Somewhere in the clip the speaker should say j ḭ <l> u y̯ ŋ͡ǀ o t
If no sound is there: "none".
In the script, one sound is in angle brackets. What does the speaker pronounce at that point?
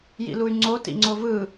l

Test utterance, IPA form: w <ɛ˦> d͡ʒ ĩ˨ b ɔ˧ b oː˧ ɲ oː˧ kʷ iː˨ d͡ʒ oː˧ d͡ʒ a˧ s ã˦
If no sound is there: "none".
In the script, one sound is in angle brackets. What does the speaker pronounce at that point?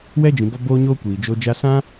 ɛ˦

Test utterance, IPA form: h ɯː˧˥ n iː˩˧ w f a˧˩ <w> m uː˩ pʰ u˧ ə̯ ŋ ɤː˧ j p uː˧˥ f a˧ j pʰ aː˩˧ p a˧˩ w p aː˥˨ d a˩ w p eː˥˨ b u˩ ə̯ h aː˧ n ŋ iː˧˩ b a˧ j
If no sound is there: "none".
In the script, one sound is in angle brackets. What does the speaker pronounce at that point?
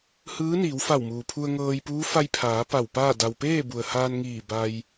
w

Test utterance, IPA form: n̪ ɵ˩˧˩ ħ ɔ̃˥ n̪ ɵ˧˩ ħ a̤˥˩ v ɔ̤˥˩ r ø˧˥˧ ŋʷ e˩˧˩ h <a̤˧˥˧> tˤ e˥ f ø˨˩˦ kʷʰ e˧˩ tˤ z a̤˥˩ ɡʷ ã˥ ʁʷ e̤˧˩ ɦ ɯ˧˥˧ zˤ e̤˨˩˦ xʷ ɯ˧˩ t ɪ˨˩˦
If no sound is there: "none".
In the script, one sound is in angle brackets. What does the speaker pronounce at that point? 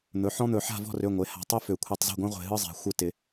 a̤˧˩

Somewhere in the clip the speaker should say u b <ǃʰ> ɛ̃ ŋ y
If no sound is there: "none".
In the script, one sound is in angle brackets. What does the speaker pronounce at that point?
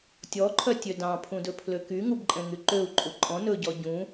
ǃʼ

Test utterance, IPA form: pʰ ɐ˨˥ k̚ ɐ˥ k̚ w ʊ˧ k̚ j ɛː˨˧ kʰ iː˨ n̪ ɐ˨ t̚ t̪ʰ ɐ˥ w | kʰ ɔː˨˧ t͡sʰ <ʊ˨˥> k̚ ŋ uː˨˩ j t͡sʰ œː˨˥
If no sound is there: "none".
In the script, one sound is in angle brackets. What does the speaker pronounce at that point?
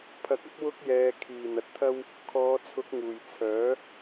ʊ˨˥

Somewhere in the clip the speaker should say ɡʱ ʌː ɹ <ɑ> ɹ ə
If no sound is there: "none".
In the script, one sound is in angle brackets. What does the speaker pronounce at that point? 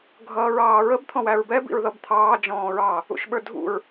ɑː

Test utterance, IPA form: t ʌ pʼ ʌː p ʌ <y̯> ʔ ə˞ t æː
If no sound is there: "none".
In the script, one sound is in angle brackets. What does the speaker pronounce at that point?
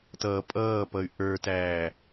y̯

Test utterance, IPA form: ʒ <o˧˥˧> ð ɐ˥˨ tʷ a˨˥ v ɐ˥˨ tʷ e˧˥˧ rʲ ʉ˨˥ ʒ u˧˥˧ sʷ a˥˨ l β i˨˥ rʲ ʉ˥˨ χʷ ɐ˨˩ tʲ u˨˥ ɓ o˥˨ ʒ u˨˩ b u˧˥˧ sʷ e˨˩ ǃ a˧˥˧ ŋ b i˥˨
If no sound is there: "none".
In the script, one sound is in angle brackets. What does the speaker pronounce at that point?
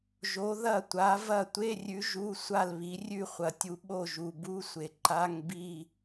o˨˥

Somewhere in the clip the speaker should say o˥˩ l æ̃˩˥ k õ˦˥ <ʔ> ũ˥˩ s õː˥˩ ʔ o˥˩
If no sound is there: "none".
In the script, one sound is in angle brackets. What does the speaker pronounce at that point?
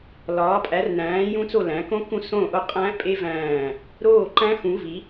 k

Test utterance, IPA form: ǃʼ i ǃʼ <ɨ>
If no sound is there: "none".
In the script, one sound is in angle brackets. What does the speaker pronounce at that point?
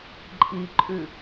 ʉ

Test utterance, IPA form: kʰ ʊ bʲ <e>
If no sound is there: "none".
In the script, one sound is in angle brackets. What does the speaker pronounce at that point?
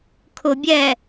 ɛ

